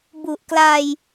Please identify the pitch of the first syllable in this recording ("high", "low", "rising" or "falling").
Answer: low